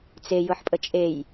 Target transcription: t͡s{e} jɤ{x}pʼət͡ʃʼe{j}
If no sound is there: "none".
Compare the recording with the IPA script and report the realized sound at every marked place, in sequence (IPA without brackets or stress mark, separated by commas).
e, ħ, j